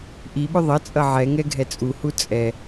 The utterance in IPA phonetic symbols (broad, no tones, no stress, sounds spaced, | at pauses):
ʔ i ɓ ʏ ðˤ ʌ t͡sʼ ʌ ʕ ɛ ŋ ɛ ɡʱ ɛ t͡sʼ u h u t͡sʼ ɛ